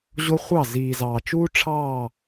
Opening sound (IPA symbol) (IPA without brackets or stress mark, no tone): ʑ